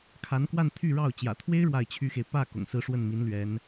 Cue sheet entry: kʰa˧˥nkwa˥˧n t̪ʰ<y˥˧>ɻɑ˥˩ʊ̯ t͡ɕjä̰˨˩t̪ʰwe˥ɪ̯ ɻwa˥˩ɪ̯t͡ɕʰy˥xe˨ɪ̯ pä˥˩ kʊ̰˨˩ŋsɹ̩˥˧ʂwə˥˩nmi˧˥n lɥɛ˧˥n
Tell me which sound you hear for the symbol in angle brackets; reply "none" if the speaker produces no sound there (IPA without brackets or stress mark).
y˥˧